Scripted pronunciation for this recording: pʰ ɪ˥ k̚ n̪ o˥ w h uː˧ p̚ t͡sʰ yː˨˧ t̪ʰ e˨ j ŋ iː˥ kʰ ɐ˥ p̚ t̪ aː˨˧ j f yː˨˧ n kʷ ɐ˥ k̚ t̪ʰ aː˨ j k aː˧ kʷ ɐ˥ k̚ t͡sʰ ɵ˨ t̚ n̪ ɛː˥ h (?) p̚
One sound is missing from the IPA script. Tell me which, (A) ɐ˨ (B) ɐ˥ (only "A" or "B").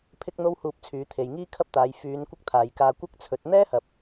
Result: A